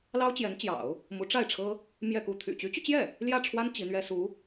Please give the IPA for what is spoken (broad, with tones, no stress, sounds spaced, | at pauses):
l ɑ˥ ʊ̯ t͡ɕ j ɛ˧˥ n t͡ɕ j ɑ̰˨˩˦ ʊ̯ | m u˧˥ ʈ͡ʂ a˥˩ ɪ̯ ʈ͡ʂʰ ɤ˥ | m j ɛ˥˧ k u˥˩ t̪ʰ y̰˨˩ t͡ɕ y˧˥ t͡ɕ y˧ t͡ɕ j ɛ˥˩ | l j ä˥˩ ʈ͡ʂʰ w a˥ n t͡ɕ i˧˥ n̪ ɥ ɛ˥ s u˧˥